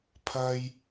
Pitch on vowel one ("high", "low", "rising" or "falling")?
high